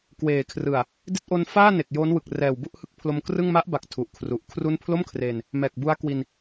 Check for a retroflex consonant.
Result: absent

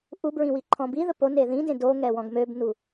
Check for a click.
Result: present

